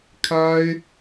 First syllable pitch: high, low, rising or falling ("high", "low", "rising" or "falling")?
high